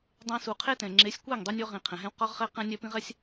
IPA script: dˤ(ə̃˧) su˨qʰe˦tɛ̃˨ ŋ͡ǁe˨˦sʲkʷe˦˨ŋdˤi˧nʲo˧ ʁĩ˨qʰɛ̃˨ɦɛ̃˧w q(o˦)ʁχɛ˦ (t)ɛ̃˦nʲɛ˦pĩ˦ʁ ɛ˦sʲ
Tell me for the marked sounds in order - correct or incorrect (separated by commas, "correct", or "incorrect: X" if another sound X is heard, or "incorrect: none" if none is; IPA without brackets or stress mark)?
incorrect: ɛ̃˧, incorrect: ɔ˦, incorrect: q